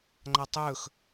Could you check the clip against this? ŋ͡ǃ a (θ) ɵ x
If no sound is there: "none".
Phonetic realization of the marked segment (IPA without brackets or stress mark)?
tˤ